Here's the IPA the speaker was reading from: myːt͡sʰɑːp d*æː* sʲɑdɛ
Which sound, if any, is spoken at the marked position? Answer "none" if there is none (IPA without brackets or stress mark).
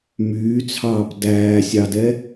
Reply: æː